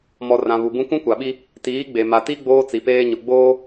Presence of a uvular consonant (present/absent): absent